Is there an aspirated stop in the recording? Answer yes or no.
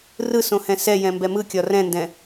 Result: no